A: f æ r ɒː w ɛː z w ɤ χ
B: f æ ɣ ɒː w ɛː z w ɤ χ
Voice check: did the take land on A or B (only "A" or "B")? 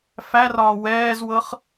A